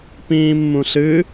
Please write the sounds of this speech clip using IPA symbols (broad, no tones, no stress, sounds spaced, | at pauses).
p ĩː mː ũ ɬ ɨ